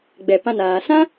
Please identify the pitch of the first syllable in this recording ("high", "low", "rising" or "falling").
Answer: low